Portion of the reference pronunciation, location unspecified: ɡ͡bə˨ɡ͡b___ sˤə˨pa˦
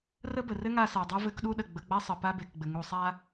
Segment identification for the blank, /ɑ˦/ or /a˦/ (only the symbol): a˦